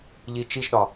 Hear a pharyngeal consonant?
no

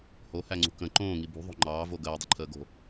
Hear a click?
yes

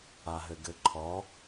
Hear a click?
yes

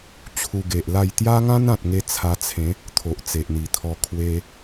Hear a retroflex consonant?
no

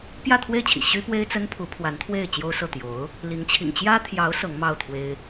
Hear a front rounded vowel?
yes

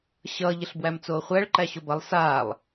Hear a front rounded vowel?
no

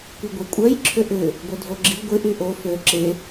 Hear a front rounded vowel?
yes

